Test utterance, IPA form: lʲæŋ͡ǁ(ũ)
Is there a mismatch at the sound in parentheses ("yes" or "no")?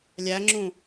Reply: no